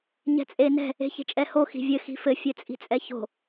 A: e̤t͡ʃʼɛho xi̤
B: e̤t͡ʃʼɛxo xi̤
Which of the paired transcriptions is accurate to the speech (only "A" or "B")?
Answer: A